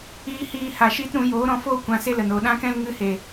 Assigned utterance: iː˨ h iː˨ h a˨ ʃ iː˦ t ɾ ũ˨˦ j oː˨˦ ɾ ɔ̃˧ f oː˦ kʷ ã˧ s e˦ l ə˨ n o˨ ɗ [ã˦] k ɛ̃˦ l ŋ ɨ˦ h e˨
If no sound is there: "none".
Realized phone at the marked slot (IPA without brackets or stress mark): ã˦